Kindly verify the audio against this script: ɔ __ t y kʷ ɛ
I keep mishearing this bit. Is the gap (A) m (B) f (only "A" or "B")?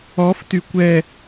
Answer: B